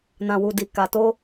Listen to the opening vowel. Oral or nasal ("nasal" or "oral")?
nasal